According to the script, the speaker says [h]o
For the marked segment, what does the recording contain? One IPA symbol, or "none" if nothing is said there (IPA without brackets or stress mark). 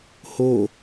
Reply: h